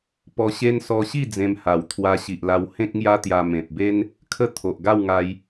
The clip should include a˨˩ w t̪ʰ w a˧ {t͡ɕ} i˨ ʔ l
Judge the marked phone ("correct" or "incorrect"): incorrect